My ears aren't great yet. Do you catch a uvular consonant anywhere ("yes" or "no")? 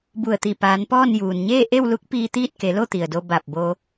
no